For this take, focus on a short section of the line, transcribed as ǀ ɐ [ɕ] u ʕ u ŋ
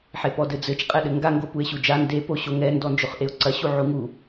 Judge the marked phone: correct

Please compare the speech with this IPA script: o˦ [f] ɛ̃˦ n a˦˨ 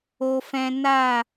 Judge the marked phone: correct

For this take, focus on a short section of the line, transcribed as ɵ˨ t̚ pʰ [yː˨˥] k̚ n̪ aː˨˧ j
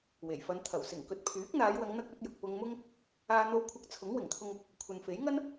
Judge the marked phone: correct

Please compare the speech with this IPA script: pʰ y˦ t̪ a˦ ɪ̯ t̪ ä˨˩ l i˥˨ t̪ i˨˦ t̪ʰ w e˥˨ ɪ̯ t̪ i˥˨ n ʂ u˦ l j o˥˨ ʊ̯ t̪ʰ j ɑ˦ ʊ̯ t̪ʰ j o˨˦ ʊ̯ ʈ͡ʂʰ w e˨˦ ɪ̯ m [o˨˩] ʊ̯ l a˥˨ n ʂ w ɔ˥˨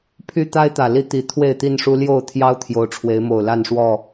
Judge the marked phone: correct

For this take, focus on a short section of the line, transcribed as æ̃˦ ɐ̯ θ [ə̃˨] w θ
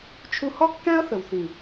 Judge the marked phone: incorrect: ə˨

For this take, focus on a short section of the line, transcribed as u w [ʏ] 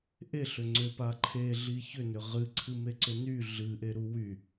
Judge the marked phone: incorrect: y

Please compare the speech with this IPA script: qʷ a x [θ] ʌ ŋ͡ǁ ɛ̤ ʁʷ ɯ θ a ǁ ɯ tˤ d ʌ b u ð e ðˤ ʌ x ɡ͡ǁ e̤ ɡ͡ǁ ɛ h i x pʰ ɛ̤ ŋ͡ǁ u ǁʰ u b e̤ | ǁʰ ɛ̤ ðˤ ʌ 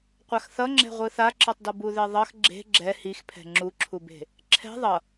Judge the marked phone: correct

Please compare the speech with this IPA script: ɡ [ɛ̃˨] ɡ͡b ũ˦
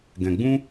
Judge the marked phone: correct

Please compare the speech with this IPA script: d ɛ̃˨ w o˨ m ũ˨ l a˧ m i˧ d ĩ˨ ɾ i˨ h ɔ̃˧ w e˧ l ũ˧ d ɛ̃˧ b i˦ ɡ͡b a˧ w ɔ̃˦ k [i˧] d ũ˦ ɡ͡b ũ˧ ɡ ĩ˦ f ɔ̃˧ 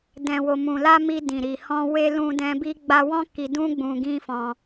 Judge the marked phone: correct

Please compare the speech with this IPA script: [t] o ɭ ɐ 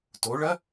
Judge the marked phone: correct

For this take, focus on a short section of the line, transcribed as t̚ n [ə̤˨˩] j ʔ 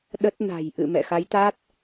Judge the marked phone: incorrect: a̤˨˩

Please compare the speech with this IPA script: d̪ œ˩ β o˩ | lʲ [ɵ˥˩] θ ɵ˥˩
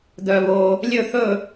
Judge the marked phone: correct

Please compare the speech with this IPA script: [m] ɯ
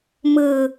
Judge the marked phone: correct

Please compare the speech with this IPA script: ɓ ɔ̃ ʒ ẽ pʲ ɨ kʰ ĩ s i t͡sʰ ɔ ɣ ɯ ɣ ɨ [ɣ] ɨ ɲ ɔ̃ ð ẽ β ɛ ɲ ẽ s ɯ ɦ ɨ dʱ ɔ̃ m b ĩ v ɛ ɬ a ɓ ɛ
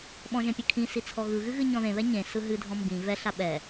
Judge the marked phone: correct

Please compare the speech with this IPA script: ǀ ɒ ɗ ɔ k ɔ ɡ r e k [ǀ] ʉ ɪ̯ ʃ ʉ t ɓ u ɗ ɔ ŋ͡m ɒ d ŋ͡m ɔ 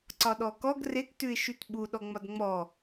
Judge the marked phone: incorrect: t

